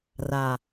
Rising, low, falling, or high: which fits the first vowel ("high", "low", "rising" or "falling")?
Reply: low